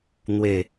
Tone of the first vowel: falling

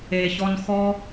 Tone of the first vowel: low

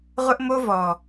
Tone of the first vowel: high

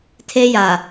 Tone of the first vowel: high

